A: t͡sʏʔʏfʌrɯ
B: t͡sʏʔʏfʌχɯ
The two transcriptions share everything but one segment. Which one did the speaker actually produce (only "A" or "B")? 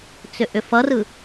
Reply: A